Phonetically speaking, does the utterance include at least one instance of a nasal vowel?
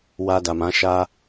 yes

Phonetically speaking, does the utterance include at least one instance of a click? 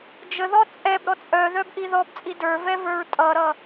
no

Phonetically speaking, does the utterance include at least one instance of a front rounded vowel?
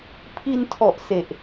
no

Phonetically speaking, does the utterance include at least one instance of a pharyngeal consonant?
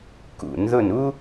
no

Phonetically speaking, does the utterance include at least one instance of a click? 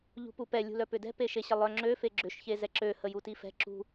yes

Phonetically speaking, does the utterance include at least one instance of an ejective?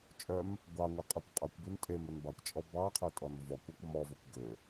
yes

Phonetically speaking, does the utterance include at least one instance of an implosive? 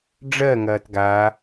no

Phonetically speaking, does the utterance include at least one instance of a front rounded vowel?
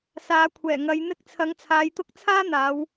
no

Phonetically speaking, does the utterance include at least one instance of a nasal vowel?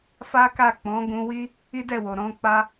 yes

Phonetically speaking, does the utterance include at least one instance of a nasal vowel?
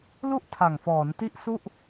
no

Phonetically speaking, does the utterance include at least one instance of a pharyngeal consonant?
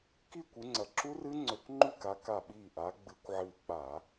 yes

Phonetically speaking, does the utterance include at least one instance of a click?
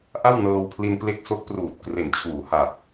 no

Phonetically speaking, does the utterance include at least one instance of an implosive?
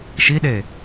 yes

